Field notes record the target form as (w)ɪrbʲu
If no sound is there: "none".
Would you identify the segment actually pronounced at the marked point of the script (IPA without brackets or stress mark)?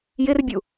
j